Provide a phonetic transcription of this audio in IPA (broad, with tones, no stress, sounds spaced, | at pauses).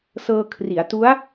s ɤː˧ kʰ r i˩˦ a̯ t u˦˥ a̯